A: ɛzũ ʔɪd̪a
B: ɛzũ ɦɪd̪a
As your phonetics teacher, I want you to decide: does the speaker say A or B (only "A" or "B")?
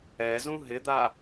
B